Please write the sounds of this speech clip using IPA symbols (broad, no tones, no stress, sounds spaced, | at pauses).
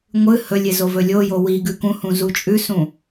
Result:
ŋʷ ɨ h ɵ lʲ e z o v ɵ lʲ o j o w i ɡ ʉ k ũ h ũ z u t͡ʃʼ ʉ s ũ